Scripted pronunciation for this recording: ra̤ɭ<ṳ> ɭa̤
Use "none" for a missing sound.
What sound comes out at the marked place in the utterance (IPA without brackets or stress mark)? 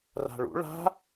ṵ